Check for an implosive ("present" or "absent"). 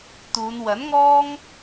absent